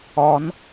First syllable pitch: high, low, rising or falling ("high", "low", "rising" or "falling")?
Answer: rising